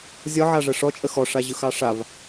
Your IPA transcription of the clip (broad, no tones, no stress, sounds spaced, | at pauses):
zʲ ɒ ʕ a ʐ ə ʂ ɔ t͡ʃʼ ə x ɔ ʂ a ʑ ɯ x ɑ ʂ a v